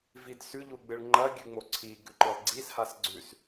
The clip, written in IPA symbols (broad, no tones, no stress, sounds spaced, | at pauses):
v i d s ʉ ʎ u ɡ͡b ɨ ɭ ŋ͡ǃ ɐ ɡʲ ʉ ŋ͡m o ǀʰ i ɡ ʉ ǃ ɨ lˠ ɡ͡ǀ i s h a s ɡ͡ǀ ʉ s